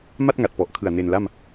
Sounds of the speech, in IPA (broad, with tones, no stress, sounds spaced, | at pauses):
m a˥˩ t̚ ŋ a˨˩ t̚ p ɔ˨˩ ʔ kʰ ɯ˨˩ a̯ n e˧ n l a˥˩ m